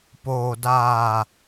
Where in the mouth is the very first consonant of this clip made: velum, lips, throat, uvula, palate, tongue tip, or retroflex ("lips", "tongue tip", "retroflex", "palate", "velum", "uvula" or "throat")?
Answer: lips